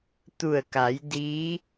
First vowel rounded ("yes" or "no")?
yes